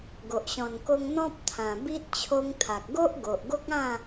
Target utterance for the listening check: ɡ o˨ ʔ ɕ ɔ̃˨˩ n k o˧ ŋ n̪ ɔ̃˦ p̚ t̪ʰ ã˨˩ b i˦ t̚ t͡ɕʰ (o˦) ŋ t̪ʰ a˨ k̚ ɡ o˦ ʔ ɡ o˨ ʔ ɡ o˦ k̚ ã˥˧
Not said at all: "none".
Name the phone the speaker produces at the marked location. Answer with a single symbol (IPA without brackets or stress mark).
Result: o˧